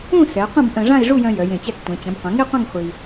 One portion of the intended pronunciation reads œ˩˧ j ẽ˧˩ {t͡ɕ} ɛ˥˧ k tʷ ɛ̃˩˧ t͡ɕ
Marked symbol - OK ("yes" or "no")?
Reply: yes